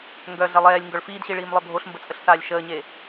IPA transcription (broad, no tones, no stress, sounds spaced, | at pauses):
ŋ ɡ œ ɮ ɛ lˠ ɛː lʲ ŋ ɡ œ ɭ f iː d ɕ i ɭ iː m lˠ œ bʱ o ɬ m b ə t͡sʼ ə ɬ s aː lʲ ʃ əː ɲ e